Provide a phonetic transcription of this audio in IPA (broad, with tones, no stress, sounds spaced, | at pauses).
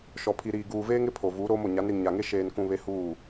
ʃ ɔ˨ pʰ i˨ ɾ iː˨ ɡ uː˨ v eː˦ ŋ ɪ˦ pʰ o˨ v uː˨˦ ɾ oː˦ m o˨ ɲ a˨˦ n ɾ i˨ ŋ ɲ a˨ ŋ e˦ ʃ eː˨ n k ũ˨ β e˦ h uː˦˨